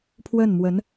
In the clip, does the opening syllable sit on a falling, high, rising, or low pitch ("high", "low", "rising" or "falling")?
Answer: falling